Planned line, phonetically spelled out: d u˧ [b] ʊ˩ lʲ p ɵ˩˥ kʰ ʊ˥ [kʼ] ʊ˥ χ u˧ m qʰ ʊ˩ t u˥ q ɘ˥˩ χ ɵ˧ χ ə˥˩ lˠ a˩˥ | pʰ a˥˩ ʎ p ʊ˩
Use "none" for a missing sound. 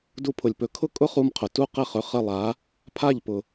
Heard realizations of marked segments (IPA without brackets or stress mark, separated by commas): pʰ, kʼ